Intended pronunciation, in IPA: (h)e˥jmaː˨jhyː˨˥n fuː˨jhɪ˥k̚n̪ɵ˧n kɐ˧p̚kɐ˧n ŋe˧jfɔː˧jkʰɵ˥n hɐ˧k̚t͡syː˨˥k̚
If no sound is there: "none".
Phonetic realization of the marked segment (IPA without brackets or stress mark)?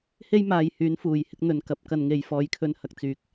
h